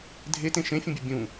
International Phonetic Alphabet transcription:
dʱ e t ẽ ʃ ẽ fʲ ũ bʲ ə bʲ ũ

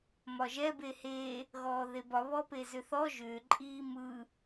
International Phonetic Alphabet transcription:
m ɒ ʒ ɛ b e h e | ɣ ɔː ð e b ɒ β ɔ p e z ʏ θ ɔ ʒ ʏː ǃʼ iː m ɯ

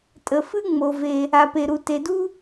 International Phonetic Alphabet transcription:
tʼ ə˩ f ɨ˥ ŋ͡m o˩ v e˩ | a˩ p e˩ ɾ u˩ t e˩ d u˥

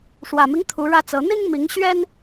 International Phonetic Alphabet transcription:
ʂ w ä˨˩ m i˦ ŋ t̪ʰ u˨˦ ɻ ä˦ t͡s ɤ˨˦ n̪ i˦ ŋ m i˨˦ ŋ ɕ ɥ ɛ˦ n

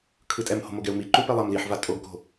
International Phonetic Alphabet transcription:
kʰ ɯ tʼ ɛ m h o̤ m o ɡ ɛ u̯ m i ǃ u p ɛ lˠ a m l i ħ v a tʼ o ɡ k o̤

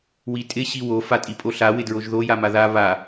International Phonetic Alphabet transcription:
w i tʼ ɪ ɕ i w o f a tʼ i pʼ o ɬ a w ɪ d ɹ o ʒ ð o j a m a ð a β a

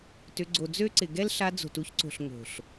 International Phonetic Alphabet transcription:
t ʏ˧ ɡ͡ǀ o˨ d͡z ø˦ ǀ ɪ˨ ɡ ɛ˦ l ɬ a˧ d͡z o̤˨ t u˧ ç ǀ o̤˨ ɬ ŋ o̤˨ ɬ

